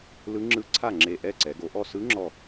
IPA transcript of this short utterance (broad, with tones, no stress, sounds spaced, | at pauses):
l ɯ˧˥ ŋ͡ǁ ɯ˧˥ ǀʰ a˥˩ ŋ͡ǁ e˧˩ ʔ ɛ˥˩ ǀ ɛ˩˧ ɡ o˩˧ ʔ ɔ˥˩ s ɯ˧˥ ŋ͡ǁ ɔ˧˩